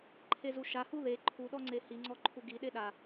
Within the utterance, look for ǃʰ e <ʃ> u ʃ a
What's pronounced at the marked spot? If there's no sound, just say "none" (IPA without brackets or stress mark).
z